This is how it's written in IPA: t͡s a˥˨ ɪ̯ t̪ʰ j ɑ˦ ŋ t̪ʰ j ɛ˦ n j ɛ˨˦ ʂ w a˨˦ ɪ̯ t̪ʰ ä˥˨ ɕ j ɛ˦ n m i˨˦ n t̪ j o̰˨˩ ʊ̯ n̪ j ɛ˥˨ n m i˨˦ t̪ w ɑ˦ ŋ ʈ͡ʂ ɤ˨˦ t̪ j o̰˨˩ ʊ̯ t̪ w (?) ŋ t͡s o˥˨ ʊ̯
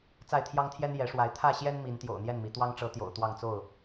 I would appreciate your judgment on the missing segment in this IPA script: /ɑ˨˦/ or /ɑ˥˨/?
ɑ˥˨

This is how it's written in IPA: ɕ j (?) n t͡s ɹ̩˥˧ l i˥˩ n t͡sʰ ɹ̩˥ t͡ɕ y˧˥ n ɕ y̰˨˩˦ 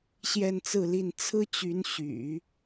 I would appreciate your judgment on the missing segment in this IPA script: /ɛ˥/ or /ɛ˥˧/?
ɛ˥˧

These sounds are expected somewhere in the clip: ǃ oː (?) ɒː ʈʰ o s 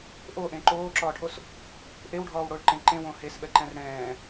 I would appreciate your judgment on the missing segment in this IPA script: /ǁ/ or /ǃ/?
ǁ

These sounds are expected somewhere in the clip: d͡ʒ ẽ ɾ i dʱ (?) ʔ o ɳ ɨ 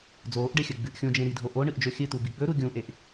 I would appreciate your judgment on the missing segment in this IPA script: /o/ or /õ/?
o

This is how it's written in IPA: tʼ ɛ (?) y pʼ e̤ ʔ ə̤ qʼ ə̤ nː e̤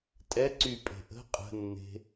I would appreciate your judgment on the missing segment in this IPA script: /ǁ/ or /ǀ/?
ǀ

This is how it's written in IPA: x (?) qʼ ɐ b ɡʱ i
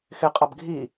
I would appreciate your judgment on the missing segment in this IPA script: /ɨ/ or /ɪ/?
ɪ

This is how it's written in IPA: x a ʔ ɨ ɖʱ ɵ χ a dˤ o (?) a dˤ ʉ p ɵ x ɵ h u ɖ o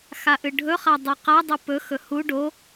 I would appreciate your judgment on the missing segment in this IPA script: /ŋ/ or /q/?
q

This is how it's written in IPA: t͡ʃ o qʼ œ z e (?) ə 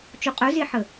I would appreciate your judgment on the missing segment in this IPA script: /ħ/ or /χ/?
ħ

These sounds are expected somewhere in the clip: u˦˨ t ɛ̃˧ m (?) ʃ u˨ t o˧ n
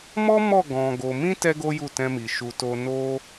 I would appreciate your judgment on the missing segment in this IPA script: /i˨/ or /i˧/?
i˨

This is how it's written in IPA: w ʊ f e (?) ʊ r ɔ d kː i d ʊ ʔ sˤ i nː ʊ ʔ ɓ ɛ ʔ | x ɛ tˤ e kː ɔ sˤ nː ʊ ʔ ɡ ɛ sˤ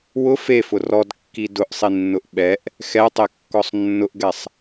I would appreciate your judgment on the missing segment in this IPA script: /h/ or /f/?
f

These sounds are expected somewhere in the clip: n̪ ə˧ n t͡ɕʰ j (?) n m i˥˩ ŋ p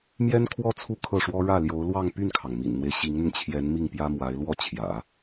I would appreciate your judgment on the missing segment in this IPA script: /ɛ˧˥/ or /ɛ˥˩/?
ɛ˧˥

